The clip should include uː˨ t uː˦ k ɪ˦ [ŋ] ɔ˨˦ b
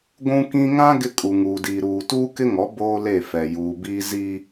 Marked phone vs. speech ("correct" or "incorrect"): correct